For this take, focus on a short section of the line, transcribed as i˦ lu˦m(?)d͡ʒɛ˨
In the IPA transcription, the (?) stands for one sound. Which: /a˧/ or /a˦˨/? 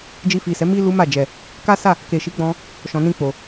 a˦˨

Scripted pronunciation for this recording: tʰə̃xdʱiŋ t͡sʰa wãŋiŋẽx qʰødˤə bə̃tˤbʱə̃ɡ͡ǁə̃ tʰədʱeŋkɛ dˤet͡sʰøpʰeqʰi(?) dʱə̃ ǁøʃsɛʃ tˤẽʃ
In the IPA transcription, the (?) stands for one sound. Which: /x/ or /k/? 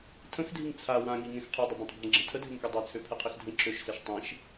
x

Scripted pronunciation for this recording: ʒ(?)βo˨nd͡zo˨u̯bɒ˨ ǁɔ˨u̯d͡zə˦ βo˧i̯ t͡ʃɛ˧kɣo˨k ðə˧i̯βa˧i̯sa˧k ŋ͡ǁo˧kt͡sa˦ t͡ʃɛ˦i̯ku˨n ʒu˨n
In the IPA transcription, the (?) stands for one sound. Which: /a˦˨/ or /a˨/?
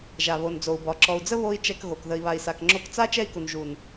a˨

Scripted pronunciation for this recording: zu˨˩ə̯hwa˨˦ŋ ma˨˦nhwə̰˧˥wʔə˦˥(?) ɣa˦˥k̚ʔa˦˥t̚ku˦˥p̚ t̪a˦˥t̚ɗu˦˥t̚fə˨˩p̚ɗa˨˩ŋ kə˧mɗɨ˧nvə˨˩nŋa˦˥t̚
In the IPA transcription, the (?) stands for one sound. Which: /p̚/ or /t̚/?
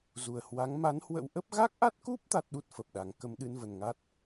p̚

